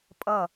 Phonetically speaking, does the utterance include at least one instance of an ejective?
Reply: yes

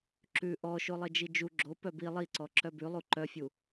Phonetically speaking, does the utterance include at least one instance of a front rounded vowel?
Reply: yes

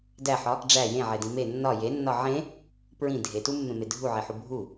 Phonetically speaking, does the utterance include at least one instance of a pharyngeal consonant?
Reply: yes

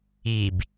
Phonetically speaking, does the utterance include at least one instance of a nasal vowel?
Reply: no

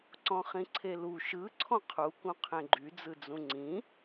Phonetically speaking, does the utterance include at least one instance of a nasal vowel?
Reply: yes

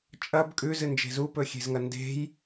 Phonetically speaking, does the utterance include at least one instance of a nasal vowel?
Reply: no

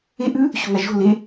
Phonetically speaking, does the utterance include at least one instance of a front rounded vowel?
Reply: no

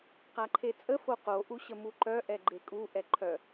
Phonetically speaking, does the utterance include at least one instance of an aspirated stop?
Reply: yes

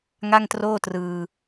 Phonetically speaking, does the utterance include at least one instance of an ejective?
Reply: no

